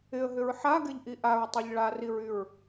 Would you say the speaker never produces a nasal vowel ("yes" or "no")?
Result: yes